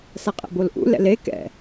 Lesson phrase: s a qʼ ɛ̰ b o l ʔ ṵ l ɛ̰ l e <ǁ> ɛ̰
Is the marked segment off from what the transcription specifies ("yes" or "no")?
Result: yes